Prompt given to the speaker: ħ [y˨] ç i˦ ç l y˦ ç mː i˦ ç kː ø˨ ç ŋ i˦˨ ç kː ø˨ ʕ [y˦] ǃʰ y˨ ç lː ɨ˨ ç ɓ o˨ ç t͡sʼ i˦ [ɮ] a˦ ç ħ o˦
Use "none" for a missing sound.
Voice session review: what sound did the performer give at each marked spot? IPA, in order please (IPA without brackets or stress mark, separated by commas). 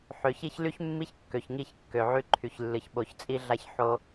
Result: ø˨, y˦, ɮ